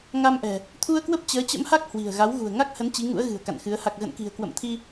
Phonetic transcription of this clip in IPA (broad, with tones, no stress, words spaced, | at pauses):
ŋa˧mʔɛ̤˨˩ | t̪ʰu˧ə̯kwə˦˥p̚ t͡ɕəː˨˦t͡ɕə̰˧˥mha˦˥k̚ hwi̤˨˩ə̯ɣa˨˦w ɣṳ˨˩ə̯ŋa˦˥k̚hə˨˦n t͡ɕi˨˦ŋṵ˧˥ə̯ɣɨ̤˨˩ə̯ ka̰˧˨nxɨ˨˦ə̯ ha˨˩k̚ɣə̰˧˨nki̤˨˩ə̯ kwə̰˧˨mt̪ʰi˧